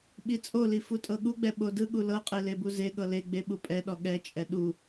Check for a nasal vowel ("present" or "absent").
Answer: absent